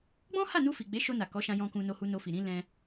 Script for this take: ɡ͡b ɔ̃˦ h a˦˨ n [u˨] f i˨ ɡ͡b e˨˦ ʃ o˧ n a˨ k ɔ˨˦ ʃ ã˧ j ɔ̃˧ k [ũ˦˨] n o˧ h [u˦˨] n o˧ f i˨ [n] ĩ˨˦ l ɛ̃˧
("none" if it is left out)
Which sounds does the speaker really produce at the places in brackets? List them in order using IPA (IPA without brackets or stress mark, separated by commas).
u˧, ũ˧, u˧, ɾ